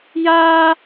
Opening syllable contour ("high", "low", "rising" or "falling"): high